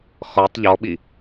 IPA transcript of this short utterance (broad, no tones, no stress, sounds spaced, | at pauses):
x ɔ tˤ ʎ ɔ ɓ i